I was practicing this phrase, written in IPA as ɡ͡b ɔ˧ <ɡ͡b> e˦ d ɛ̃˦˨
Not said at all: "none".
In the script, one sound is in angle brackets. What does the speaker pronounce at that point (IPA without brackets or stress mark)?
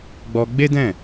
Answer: ɡ͡b